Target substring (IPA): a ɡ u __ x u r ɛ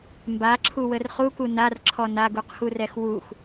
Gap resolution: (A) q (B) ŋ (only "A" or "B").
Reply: A